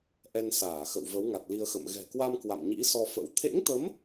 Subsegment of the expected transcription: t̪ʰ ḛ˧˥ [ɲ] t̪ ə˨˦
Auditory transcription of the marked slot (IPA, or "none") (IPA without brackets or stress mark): ŋ